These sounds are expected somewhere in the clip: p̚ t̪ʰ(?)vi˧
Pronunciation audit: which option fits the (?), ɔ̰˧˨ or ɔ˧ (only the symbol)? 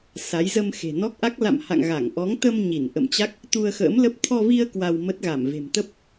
ɔ˧